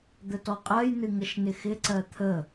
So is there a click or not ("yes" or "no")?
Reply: yes